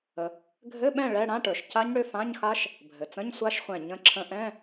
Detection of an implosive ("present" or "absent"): present